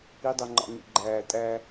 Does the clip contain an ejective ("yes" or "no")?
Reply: yes